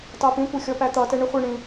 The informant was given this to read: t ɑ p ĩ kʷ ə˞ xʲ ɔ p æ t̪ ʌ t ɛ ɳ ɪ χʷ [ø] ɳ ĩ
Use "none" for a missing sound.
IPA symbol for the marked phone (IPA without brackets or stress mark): ɛ